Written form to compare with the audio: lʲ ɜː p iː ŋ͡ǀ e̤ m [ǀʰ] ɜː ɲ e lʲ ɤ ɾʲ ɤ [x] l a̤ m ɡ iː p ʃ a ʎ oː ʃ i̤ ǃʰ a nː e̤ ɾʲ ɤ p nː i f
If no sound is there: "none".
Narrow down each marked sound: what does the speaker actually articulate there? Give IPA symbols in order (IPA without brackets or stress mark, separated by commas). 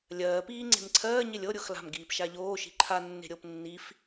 ǀʰ, x